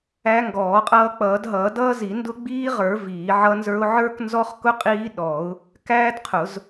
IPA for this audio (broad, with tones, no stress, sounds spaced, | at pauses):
æ˦˥ ŋ ɡ ɔː˨˩˦ qʼ ʌː˦˥ k͡p ʌː˨˩˦ d ɦ ʌː˨˩˦ d ʌː˦˥ z i˨˩˦ n d ʊ˦˥ ɡ͡b iː˦˥ ʁ ə˞˨˩˦ v iː˨˩˦ ʕ ʌ˦˥ n z ə˞˦˥ ʊ̯ ʕ ə˞˦˥ k n z ɔ˦˥ χ k ʊ˦˥ qʼ iː˦˥ ɗ ɔ˨˩˦ ʊ̯ | k æː˦˥ d qʰ ʊ˨˩˦ z